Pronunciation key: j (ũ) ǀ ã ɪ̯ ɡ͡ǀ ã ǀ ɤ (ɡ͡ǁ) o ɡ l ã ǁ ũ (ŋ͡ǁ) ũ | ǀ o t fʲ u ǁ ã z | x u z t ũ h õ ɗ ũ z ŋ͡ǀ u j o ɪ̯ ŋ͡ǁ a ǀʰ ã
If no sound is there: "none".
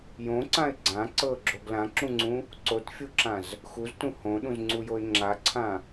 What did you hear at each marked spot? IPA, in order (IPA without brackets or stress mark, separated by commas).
õ, ɡ͡ǁ, ŋ͡ǀ